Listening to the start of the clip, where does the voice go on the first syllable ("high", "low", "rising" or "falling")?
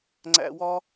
low